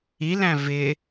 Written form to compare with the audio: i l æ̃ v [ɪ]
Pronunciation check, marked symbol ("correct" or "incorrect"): correct